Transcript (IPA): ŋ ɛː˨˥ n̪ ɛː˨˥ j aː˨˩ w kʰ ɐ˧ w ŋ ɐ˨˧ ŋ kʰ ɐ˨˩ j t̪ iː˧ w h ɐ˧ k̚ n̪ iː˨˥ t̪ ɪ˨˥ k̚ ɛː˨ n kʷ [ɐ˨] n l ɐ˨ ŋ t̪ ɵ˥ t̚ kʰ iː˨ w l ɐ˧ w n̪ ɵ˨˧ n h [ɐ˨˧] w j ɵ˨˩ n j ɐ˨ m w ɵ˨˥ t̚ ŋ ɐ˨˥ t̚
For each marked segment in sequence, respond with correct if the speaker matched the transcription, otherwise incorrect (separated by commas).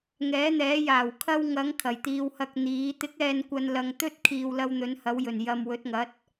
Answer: correct, correct